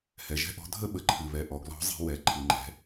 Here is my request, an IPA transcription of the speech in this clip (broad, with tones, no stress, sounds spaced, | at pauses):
h ɛ˩ ʒ ɛ̤˥ ʔ ɔ̤˧˥ dʱ ə˥ ɓ ə˩˧ ǃʰ ɨ˩ β ɛ˩ ʔ ɔ˩˧ ɡ l ɔ̤˧˥ zˤ i̤˧ w ɛ˩˧ ǃʰ ɨ˩ ŋ͡ǃ ɛ̤˩˧